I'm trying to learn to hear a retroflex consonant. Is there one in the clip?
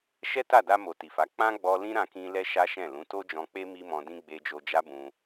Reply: no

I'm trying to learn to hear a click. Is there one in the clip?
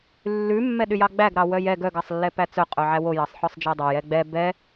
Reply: no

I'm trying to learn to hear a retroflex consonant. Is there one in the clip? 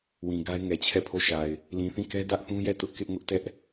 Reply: no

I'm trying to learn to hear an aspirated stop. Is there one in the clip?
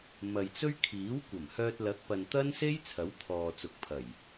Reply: yes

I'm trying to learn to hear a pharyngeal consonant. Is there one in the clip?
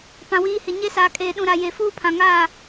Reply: no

